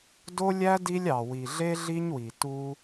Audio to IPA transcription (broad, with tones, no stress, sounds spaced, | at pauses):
d o˦ lʲ æ˦ d i˦ lʲ ɑ˨ w i˨ ɮ e˦ ɮ i˦ ɲ w i˨ t u˧